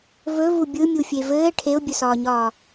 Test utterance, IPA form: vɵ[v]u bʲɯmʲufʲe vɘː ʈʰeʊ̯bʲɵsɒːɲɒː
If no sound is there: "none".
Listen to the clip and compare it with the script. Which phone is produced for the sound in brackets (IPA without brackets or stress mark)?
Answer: v